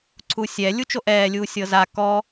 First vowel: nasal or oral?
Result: oral